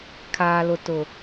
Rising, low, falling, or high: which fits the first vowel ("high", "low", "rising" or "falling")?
low